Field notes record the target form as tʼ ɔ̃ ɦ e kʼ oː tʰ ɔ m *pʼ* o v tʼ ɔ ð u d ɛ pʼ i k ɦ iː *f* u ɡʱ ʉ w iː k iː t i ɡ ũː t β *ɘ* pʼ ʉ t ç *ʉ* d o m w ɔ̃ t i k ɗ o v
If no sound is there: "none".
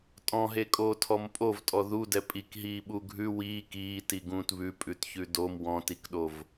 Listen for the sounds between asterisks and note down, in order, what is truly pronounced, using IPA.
pʼ, ɓ, ʉ, ʉ

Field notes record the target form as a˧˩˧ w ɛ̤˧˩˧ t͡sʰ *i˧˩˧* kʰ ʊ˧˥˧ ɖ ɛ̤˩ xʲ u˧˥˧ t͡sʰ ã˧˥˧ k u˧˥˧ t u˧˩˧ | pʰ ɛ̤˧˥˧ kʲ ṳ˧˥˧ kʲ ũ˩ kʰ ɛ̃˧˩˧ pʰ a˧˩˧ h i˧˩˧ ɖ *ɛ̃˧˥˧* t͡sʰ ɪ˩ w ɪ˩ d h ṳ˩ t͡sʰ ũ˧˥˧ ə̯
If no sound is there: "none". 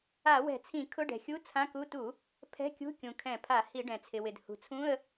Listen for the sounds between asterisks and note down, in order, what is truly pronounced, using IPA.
ĩ˧˩˧, ɛ̃˩

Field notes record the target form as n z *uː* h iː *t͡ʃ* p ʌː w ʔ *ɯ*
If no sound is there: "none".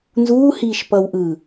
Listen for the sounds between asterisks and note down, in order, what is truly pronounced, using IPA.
uː, ʃ, ɯ

